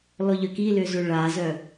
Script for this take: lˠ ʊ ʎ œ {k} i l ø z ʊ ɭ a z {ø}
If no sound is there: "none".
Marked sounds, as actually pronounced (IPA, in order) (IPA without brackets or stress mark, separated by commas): k, œ